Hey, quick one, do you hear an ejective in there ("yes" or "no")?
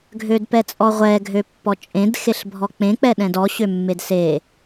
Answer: yes